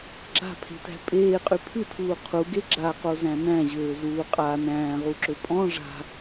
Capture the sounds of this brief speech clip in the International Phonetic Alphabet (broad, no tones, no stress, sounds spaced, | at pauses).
ɡ͡ǁ a̤ pʰ e̤ t æ̤ pʼ eː qʼ y pʰ ɨ tʰ uː qʰ u ɡ e ɡ͡ǁ a q o z æ̃ n æ̃ ʑ øː z uː qʼ a n æ̃ː ʁ u ǁ ø pʼ ɔ̃ ʐ a̤